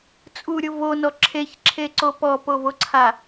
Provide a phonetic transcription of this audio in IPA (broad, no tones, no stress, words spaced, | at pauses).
t͡sʼuɾʲʊ vonɔ ǁʰeçǁʰeǀo pɔpovoǀʰa